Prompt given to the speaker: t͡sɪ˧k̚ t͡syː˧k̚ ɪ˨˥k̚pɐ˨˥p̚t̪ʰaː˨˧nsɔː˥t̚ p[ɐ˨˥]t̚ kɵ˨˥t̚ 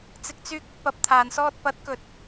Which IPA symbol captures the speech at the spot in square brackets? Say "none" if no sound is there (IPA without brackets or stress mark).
ɐ˨˥